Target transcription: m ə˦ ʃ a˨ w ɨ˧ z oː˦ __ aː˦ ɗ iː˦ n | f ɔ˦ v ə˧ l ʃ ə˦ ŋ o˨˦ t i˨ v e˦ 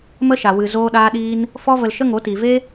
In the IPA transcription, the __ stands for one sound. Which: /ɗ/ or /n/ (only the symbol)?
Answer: ɗ